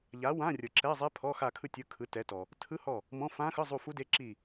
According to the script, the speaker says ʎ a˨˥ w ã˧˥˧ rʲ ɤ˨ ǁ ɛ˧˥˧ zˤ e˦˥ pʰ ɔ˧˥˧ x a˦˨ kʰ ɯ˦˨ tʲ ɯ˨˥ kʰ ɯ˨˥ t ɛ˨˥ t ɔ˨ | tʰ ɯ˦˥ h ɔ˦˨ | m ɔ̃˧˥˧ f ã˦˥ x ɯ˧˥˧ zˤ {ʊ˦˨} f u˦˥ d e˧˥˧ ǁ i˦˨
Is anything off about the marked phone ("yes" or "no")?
yes